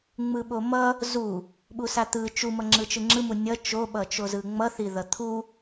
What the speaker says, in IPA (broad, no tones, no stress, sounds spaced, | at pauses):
ŋ͡m ɯ ɓ o m ʌ | z u | ɓ u s a t̪ ɯ t͡ʃ u m ʌ ŋ͡ǁ ɯ t͡ʃ ɯ ŋ͡ǁ ɯ m u nʲ ʌ t͡ʃ o ɓ ʌ t͡ʃ o z ɯ ŋ͡m ʌ θ i ð ʌ t̪ʰ u